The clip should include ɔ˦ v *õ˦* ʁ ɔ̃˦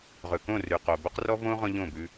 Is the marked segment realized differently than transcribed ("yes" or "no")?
no